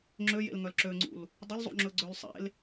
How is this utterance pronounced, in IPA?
ŋ͡ǁ ø j ḛ l ŋ œ l ǁ ø ŋ͡ǀ ṵ l | dˤ ɵ l zˤ ṵ ŋ͡ǁ ɵ ɡ͡ǀ ø l sˤ ḛ l

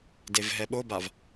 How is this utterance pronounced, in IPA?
d e v ɦ ɛ ɓ o b a v

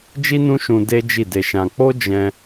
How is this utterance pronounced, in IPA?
d͡ʒ i˦ n ũ˦ ʃ ũ˧ d e˦ d͡ʒ i˦˨ d e˧ ʃ ã˧ k͡p o˦ d͡ʒ ɛ̃˧

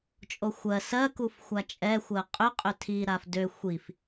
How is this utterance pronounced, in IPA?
t͡ʃʼ o xʷ ɜ s ɜ k u f xʷ a t͡ʃʼ ɛ xʷ ɜ qʼ ʏ qʼ ʏ tʰ i ɾ a f d ø xʷ i f

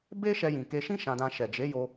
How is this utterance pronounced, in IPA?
b e˦ ʃ ɛ˧ j ĩ˨ k e˧ ʃ ĩ˦ ʃ ã˧ d ã˧ ʃ ɛ˨ d͡ʒ e˨˦ j o˧

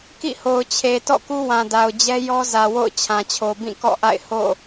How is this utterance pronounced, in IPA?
k ḭ˦˨ h o˨ ʊ̯ t͡ɕʰ e˨ t ɔ̰˦˨ k u˦ w ã˨ d a˨ ʊ̯ d͡ʑ ɛ˦ j ɔ˦ z ä˨ w o̰˦˨ ʊ̯ t͡ɕʰ ã˨ t͡ɕʰ o˨ b ĩ˦˨ k ɔ̰˦˨ ʔ a̰˦˨ ɪ̯ h o̰˦˨

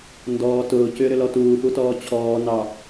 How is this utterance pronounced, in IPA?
n d ɔː t ʊː c ʏː ɾ ʏ l ɔ t uː f u t ɔː t͡ɕʰ ɔː n ɑ

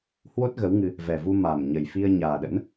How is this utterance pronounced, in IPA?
h w o˦˥ t̚ ɣ ə˨˦ w ŋ ɨ˧ | v ɛ˨˩ v u˧ m a˨˩ m ɲ ə˨˩ j f i˧ ə̯ ɲ aː˨˩ ɗ ə̰˧˥ n

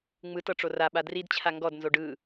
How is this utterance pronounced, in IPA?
ŋ͡m ɯ t ɤ ʈ͡ʂ o r a ɓ a d r i d t͡ɕʰ a ŋ ɡ ɔ d n z o ɖ ɯ

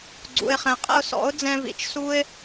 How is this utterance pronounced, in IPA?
ɡ͡ǀ ṵ˨ ɪ̯ χ ɛ̃˨ qʼ ɛ̰˧ ʊ̯ s ɔ̰˨˦ ʊ̯ d͡z ɛ̃˧ v ḭ˨ t͡ʃ s u˦ ɪ̯

